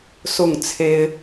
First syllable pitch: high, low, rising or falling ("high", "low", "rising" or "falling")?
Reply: falling